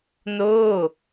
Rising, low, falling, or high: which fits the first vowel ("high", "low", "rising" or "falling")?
falling